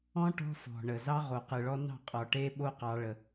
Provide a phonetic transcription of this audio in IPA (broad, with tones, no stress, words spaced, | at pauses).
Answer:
ɔ̃˦ ʈɔ̤˦fɔ̤˨ɳə˨ zɑ˦ʁo˨ qɯ˨ɭɔ˦nɑ̤˦˨ qʼɔ˨ʈe˦ɓo˦ qɑ˦ɭə˦